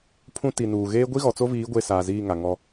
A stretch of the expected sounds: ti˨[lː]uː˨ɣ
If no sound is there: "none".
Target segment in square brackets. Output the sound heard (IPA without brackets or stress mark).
n